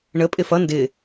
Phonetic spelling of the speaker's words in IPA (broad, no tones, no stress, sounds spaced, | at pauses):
ɳ ə pʼ ɪ f ʌ n d ɪ